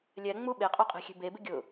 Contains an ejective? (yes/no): yes